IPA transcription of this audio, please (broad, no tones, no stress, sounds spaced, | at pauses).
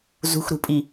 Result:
z ṳ x ɾ ṳ pʼ i